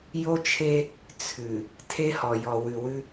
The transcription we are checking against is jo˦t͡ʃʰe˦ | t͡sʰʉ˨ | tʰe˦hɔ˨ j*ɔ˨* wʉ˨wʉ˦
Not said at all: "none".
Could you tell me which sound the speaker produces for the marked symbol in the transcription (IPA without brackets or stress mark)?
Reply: ɔ˨